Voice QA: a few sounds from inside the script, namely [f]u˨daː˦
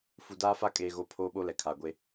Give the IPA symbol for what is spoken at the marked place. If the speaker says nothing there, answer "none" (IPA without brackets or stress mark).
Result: f